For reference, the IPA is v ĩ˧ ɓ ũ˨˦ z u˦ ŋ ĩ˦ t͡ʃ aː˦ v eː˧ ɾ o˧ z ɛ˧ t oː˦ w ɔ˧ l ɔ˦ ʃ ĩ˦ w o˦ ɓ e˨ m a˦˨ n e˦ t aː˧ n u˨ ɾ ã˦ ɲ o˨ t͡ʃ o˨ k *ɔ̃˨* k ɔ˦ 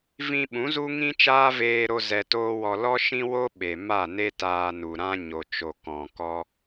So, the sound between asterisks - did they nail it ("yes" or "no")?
yes